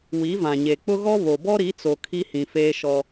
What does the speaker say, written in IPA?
w i˨˦ v ã˨ ɲ e˨ k͡p ʊ˦ ɣ ɔ˦ β o˨ b ɔ˦ ɾ i˨˦ t͡s o˨ kʰ i˦ h ĩ˨ f eː˦ ʃ ɔ˦

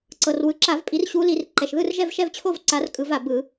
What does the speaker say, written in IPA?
ǀ ɤ˩ r w ɯ˩ ǁ a˧˩˧ v pʼ i˨˦ r ɕ u˨˦ l i˧˩˧ r ǃ ɛ˩ ʃ ð ɯ˥˧ r ʒ ɛ˥˧ v ʃ ɛ˥˧ v t͡ɕʰ o˥˧ v ǀ a˨˦ r kʼ ɯ˧˩˧ v a˩ b ɯ˧˩˧

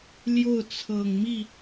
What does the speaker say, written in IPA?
l j o˥˩ ʊ̯ t͡sʰ ɤ˨˩ ŋ m i˥˩

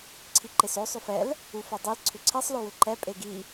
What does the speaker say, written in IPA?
ǀʰ i ǃ e s o sˤ ʏ f ɛ l | u f o dˤ i l ǀʰ ʏ ǀʰ i sˤ l o w ʏ ǃ ɛ pʼ e ɡ i

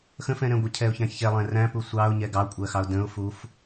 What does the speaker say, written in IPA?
x ə̃ f ɛ̃ ɾ ɛ̃ ɡʷ ə cʰ ɛ ʊ̯ ç æ̃ ç ɛ lˠ ɛ̃ r æ̃ p u sʷ ɑ ʊ̯ ɲ ɛ ɡ ɑ kʷʼ ɜ x ɑ ʊ̯ d ə̃ ʊ̯ f u f

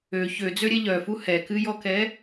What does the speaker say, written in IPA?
ø ç ø d͡z ø ɾʲ ɛ ʎ œ f u h ɛ k ɨ j ɔ k ɛ

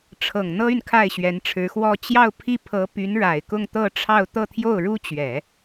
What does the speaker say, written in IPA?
ʈ͡ʂʰ ɤ˨˩ ŋ n̪ ɤ˥ y˨ n kʰ a˥˩ ɪ̯ ɕ ɥ ɛ˧˥ n ʈ͡ʂʰ ɻ̩˧˥ x w ɔ˥ t͡ɕ j ɑ˥˧ ʊ̯ pʰ i˥˩ pʰ ɤ˧˥ p y˧˥ n ɻ a˨˩ ɪ̯ k ʊ˥˧ ŋ t̪ ɤ˥˧ ʈ͡ʂʰ ɑ˥˧ ʊ̯ t̪ ɤ˥˧ t̪ʰ j o˥˩ ʊ̯ ɻ u˥ t͡ɕ ɥ ɛ˨˩˦

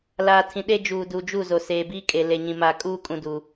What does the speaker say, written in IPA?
l aː˨ tʰ ĩ˨ ɗ e˦ d͡ʒ uː˨ d u˨ d͡ʒ u˦˨ z o˨ s eː˨ b iː˦ kʼ e˨ l e˨ ɲ ĩ˨ m aː˨ kʼ uː˦ kʼ ũ˨ d u˨

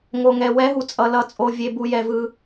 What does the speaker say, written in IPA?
ŋ o˨ ŋ ɛ˨ w ɛ˨˦ ɦ u˨ t͡sʼ ʌ˨ l ʌ˨ t͡sʼ o˨ vʲ e˨ b u˨ j ɛ˨ v ɯ˨

